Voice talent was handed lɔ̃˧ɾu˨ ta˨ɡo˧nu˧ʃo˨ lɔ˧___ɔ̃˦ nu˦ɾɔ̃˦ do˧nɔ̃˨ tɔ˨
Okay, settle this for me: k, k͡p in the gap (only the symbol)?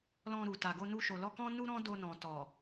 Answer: k